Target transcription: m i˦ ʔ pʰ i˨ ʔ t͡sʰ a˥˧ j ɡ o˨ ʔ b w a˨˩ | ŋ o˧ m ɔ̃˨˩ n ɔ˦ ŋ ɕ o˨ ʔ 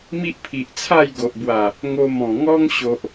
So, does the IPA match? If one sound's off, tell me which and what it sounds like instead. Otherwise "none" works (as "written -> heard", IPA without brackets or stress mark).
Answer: n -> ŋ